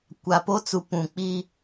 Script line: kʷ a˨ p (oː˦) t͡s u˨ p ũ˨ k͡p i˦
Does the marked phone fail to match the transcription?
yes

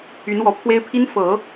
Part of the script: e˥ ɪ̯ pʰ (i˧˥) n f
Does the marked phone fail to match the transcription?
yes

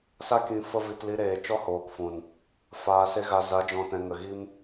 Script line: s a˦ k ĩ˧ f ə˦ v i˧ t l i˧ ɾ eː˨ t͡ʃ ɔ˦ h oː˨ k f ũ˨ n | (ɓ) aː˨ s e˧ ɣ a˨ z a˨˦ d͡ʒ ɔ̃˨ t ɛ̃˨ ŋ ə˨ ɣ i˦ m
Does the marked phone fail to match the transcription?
yes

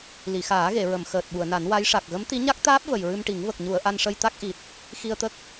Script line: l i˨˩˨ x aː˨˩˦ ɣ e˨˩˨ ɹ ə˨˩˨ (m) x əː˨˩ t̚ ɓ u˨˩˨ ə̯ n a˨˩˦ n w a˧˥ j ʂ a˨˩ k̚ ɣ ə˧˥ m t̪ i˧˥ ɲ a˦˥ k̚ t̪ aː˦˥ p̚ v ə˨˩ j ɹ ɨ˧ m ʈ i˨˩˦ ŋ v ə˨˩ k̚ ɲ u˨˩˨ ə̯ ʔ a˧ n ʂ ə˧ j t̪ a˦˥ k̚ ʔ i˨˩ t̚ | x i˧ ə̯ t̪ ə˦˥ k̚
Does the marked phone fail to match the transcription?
no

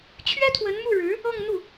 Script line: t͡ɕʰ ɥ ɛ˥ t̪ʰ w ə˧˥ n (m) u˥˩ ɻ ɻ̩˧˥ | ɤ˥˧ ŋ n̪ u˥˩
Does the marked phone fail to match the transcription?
no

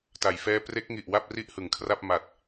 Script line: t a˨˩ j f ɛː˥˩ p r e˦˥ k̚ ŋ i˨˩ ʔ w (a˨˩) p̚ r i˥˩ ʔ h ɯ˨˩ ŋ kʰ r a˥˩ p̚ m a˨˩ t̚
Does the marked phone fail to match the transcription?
yes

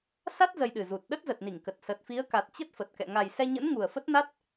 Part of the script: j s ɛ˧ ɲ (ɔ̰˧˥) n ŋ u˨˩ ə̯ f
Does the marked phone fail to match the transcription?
yes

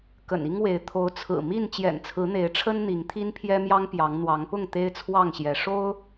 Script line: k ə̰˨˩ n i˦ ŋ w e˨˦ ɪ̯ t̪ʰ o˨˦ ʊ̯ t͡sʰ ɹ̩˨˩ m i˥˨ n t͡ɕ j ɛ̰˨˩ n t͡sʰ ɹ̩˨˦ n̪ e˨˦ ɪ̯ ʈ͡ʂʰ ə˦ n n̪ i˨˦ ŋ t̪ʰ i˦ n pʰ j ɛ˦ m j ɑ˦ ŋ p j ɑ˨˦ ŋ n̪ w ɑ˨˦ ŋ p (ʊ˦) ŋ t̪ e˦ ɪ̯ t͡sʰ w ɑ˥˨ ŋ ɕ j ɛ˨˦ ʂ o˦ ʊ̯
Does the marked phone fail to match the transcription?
yes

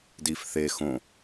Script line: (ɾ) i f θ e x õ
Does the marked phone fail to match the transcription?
yes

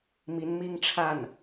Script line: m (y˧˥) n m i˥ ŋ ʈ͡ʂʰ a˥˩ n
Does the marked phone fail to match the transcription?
yes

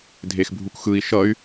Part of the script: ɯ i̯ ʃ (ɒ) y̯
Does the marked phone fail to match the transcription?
yes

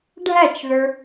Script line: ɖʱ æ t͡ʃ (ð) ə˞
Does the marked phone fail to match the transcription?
no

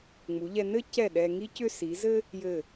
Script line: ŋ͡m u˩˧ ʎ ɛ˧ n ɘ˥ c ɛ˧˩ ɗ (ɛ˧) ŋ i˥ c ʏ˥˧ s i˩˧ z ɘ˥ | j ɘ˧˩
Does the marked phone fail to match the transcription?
no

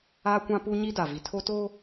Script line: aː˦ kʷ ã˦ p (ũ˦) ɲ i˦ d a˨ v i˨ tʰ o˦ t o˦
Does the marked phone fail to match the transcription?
yes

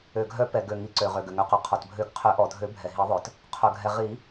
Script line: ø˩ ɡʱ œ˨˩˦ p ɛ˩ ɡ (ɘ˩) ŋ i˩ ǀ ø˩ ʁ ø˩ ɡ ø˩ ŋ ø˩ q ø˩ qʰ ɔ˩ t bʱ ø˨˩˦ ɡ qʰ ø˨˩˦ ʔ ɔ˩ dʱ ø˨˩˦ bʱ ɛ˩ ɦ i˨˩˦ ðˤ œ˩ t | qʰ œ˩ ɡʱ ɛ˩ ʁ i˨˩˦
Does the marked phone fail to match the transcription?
yes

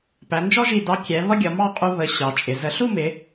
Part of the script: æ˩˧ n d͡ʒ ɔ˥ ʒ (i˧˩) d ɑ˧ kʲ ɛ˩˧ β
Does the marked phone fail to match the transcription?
no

